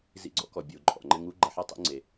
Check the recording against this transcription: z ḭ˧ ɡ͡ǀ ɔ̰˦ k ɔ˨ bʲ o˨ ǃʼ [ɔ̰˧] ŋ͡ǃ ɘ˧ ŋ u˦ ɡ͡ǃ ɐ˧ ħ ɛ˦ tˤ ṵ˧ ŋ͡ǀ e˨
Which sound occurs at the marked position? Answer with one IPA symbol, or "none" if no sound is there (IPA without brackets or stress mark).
ɔ̰˨